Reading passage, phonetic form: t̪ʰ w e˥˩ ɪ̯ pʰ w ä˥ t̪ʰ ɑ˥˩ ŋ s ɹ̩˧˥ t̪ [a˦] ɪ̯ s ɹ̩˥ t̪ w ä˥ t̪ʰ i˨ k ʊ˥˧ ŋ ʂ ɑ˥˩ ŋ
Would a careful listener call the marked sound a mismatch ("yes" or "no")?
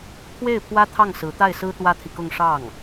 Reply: yes